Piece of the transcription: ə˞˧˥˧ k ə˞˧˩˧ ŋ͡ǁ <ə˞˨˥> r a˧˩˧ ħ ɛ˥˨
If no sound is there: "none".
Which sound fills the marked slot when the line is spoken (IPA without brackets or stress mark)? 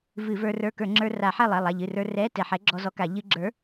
ə˞˧